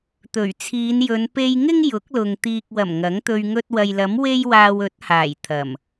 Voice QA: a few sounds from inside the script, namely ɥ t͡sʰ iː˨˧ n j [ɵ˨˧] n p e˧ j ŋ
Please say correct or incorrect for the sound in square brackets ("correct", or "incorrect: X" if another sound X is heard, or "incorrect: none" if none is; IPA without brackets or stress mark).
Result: correct